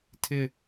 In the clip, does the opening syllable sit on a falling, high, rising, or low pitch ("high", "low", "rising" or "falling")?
falling